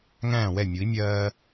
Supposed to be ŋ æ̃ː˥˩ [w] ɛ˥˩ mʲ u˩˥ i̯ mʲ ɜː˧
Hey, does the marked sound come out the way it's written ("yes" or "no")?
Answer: yes